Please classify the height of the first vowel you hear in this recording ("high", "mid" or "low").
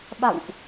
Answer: low